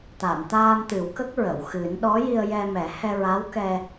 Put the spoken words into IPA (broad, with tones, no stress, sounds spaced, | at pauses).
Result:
t̪ a˨˩˨ m t̪ aː˧ m t̪ ɨ˨˩˦ w k ə˦˥ k̚ ɹ ə˨˩˨ w x ɨ˨˩˦ n ɗ ɔ˧˥ j i˧ ə̯ j ɛ˧ m ɛ˨˩˦ h ɛ˧ ɹ a˧˥ w k ɛ˧